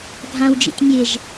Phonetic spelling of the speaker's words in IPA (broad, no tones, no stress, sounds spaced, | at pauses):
ɡʱ ã w d͡ʒ ḭ tʲ mʲ e ʒ